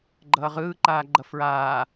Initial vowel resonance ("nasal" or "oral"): oral